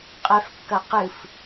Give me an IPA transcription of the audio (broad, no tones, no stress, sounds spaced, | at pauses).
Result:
qʼ ɛ f kː ɐ q ɨ f